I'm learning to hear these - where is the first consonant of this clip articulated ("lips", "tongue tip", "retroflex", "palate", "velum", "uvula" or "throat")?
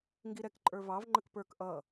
velum